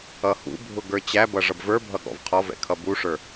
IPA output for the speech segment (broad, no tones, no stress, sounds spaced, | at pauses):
ʌ h ṵ bʱ ʊ ɡ ə˞ t͡ɕ æ b ʌ ʐ ʌ b v ə˞ bʱ ʌ ɠ ɔ̰ v qʰ ɔ v ɛ̰ kʰ ʌ b u ʂ ə˞